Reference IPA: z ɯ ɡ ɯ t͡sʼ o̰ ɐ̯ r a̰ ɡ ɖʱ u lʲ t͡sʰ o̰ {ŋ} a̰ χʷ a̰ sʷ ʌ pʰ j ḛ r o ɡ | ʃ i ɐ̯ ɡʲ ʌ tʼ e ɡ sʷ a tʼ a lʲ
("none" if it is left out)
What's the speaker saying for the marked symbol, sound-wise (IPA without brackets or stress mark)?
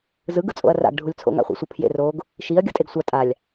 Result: ŋ